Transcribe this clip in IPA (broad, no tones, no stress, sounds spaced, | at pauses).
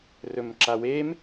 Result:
r ɵ m ǁ a w e m